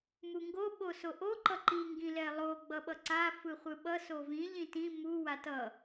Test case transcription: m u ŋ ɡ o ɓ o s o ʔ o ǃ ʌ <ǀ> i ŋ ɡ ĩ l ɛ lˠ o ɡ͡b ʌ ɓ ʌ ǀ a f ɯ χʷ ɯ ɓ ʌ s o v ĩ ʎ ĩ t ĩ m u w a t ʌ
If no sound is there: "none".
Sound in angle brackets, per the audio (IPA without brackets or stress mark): ǃ